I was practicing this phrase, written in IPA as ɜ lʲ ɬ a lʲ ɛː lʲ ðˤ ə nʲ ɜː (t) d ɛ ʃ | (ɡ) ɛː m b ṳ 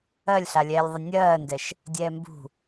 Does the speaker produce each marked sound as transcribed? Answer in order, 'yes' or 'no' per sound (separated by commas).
no, no